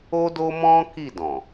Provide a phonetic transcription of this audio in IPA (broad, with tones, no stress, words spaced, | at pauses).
o˦do˦mɔ̃˦ ki˦˨dɔ̃˨